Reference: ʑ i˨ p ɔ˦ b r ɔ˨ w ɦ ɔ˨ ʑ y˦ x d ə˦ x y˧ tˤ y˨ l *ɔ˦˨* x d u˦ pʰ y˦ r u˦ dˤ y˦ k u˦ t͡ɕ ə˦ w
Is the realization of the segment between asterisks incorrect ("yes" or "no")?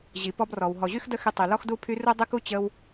yes